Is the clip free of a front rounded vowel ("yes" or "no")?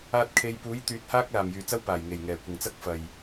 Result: no